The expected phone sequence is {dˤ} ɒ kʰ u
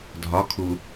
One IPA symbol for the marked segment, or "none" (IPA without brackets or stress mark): dʱ